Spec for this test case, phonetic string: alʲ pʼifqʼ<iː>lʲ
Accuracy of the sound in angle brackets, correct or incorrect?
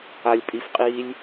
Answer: correct